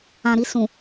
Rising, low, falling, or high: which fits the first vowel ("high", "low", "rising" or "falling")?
low